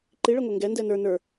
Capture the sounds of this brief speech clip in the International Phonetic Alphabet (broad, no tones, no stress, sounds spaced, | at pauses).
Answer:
ǃ i ɭ ɛ ŋʷ ɛ ŋ ɡ ɛ n d ɛ n ə˞ n ə˞